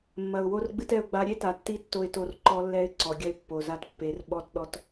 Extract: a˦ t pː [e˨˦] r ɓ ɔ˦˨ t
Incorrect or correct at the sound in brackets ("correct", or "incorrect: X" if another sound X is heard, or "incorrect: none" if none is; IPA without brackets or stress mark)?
correct